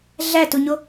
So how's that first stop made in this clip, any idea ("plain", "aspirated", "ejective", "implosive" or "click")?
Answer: plain